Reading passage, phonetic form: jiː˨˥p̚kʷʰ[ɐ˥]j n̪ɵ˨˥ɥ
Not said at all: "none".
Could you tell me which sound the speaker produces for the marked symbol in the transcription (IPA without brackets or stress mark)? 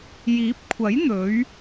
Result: ɐ˨˥